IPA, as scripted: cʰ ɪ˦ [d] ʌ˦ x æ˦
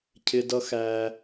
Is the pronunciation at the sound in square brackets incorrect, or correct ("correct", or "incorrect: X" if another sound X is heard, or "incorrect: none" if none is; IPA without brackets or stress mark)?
correct